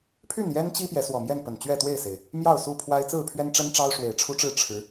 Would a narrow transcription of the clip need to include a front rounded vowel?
yes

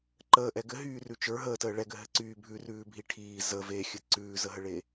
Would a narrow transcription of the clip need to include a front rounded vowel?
yes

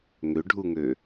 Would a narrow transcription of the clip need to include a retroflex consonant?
yes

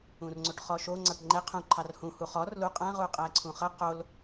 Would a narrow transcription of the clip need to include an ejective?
yes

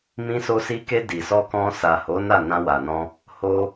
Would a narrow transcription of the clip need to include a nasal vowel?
yes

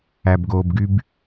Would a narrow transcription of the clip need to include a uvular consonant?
no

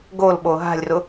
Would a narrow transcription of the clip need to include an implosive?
yes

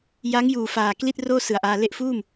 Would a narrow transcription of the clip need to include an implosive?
no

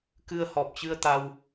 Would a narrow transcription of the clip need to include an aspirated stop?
no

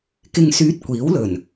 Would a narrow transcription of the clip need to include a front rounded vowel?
yes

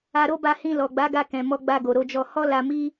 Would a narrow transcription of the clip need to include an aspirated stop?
no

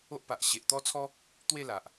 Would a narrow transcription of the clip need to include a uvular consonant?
no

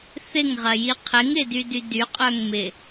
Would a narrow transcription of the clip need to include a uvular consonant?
yes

